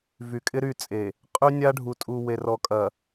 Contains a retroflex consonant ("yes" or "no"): yes